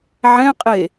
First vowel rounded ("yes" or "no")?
no